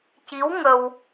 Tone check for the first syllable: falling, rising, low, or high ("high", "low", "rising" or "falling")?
rising